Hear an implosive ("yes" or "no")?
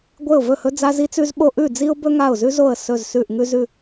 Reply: yes